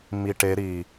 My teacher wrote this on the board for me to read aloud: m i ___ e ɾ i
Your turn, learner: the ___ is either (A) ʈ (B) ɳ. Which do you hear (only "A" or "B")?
A